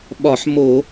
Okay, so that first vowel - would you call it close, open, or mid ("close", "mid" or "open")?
open